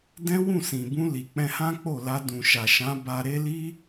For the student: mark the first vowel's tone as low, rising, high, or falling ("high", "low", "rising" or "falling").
high